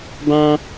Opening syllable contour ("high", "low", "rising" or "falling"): high